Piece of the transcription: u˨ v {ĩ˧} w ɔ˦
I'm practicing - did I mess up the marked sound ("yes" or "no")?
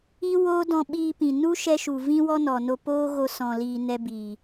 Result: yes